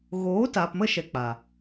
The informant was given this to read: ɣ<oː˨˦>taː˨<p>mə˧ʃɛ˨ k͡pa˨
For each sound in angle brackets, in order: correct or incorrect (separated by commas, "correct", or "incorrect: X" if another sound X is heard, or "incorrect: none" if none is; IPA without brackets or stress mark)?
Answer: correct, correct